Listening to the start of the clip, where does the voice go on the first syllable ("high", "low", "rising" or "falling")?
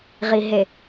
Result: low